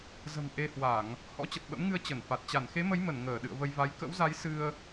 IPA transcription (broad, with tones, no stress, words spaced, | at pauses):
zə̤˨˩m ʔe˧hwa˧˩˨ŋ | hɔ̰˧˥t͡ɕə˨˩t̚ɓə̰˧˥mŋɨ˧ə̯ t͡ɕə˧˩nfa˨˩t̚ t͡ɕa˧˩nxe˨˦mə˨˦jmə˧˩n ŋəː˧˩ɗɨ̰˧˨ə̯və˧jva˨˦j kə̰˧˥wza˨˦j sɨ˧ə̯